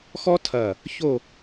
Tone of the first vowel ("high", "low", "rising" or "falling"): high